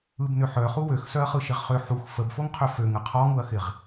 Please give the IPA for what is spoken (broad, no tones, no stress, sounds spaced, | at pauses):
ɯ b n ø ħ œ χ u w ø x s œ ɐ̯ χ ɯ ʃ ɪ ʁ χ ø ħ u x f ə b f o ŋ qʰ ø f ø ŋ ə qʰ ɔ ŋ u ɐ̯ x ɪ ʁ